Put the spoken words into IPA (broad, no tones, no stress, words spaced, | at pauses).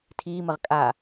tʰiːməʁ kʼa